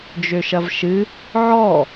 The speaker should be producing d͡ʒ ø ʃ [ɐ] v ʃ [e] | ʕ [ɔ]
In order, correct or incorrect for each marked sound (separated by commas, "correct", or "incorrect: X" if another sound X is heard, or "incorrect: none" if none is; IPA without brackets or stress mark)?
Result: correct, incorrect: ɨ, correct